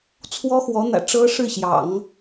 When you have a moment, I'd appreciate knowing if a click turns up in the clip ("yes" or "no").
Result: no